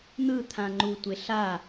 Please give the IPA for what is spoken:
n̪ ɯ t̪ʰ ã ŋ͡ǃ u tʷ e ɬ a

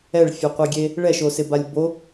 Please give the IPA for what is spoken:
ɛ ɭ fʲ ɔ qʷ i ɡʲ e | ɭ ɛ ʃ o s ɪ b a lʲ b o

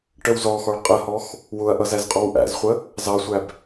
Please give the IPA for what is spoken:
ʈ ə w z ɔ x ɔ ɭ qʼ ə h ɔ x | w ʊ ɐ̯ ʔ ʌ z æ z qʼ ɔ w ʔ æ̰ z χʷ ə | z ɑ sʷ æ b

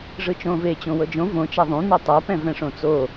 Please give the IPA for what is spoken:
ʐ ɯ t͡ʃ õː v e t͡ɕ õ w ɤ d͡ʒ õ v õ t͡ʃ a ðˤ ũ n̪ ɛ tˤ a p ɛ̃ v ɛ̃ ʂ õ t͡s o

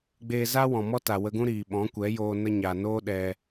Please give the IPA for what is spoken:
ɡ͡b eː˧ z a˦ w ɔ̃˨ m ɔ˦ t a˨ w ə˧ ɡ ũ˦ ɾ iː˨ ɓ ɔ̃˨˦ kʷ ɛ˨˦ j oː˧ n ə˧ ɲ a˨ n oː˦ ɗ ɛ˧

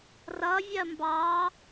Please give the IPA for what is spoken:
r ʌ vʲ ɜ m b ɑ

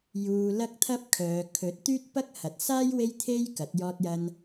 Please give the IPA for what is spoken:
j uː˧ l ɐ˥ k̚ t̪ʰ ɐ˥ p̚ kʰ œː˨˧ kʰ ɵ˨˥ t̚ t̪ yː˥ t̚ p ɐ˥ k̚ h ɐ˨ t̚ s aː˥ j w e˥ j t̪ʰ e˥ j k ɐ˨˥ t̚ j ɔː˧ t̚ j ɐ˧ n

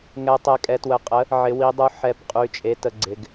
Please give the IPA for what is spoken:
ŋ ɛ˩˧ tˤ ɛ˩˧ kʼ ɛ˩˧ t w ə˩˧ qʼ ə˩˥ | ʕ ɪ˩˧ w i˩˧ dˤ u˩˥ ħ ɛ˩˧ p qʼ y˩˥ t͡ʃʼ e˩˥ t ə˩˧ ɡ͡ǀ ɪ˩˧ ɡ

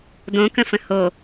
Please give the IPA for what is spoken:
d õ k ə̃ f ə̃ h o

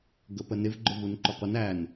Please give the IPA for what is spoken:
ɡ ə p ə n ɪ v ɡ͡ǃ ʊ v u n ǃ ʊ qʷ ɪ n æ n

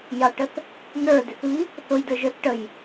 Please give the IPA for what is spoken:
j ɑ ʈ ə θ | n ə˞ d ɪ θ β i | θ ʊ j d ə˞ ʒ ə˞ θ ʈ ə j

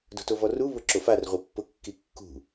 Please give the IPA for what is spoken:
d o̤ t o v ɔ r u β ʊ ǁ o f a r ʁʷ i pː ʊ kː i kː ṳ

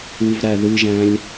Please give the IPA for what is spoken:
u v ɾ æ ð ɨ ʒ æ̃ lʲ

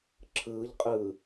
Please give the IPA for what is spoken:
ǁʰ ɯː ʎ qʼ ɯː

